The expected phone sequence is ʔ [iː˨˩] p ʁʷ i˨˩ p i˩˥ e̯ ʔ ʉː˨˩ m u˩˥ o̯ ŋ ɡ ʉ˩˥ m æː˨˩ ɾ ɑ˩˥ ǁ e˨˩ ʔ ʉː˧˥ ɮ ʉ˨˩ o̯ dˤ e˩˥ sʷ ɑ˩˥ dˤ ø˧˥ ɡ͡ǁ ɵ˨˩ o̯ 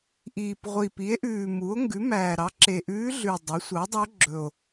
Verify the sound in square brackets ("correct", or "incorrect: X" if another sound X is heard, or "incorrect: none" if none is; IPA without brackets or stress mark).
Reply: correct